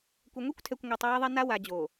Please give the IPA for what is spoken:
kʷ ɘ˨ ŋʷ e˦ kʷ tʰ ɛ˨ kʷ ŋʷ ɛ˨ tˤ w e˦ ðˤ e˦ n a˦ w a˨ d͡ʑ o˨

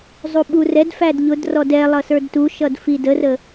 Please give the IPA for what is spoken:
zˤ u ɓ u r ɛ d f æ d ʎ ʊ d r ɔ d ɛ lˠ ʌ s ə˞ d t u ʃ ʌ d f i d ə r ə

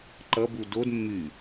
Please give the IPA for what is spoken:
ǃ ʌ b u d o d mː y

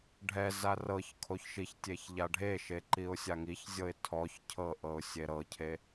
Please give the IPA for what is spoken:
ɖʱ ɛ z a r ɤ ç kʰ o ç ʃ i ç tʲ e ç ʎ a ɖʱ e ʃ e ǃ i ʊ̯ sʲ a ŋ i ç zʲ ɤ ɪ̯ tʰ ɔ ç cʰ ɤ ʔ ɤ ʊ̯ sʲ e ɾ ɤ cʰ e

